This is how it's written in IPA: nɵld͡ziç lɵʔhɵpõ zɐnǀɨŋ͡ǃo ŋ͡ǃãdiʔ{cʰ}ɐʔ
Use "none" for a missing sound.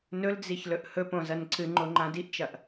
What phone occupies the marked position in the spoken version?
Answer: t͡ʃ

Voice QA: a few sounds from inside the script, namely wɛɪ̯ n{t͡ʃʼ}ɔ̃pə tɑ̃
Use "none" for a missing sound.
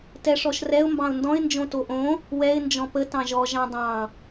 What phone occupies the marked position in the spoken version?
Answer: d͡ʒ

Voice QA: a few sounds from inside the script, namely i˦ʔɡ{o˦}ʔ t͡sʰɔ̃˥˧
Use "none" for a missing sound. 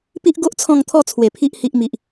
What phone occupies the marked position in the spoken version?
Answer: o˦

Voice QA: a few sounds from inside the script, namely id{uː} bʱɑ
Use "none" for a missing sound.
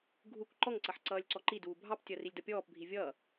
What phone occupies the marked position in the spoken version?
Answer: uː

